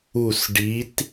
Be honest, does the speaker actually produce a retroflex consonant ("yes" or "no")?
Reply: yes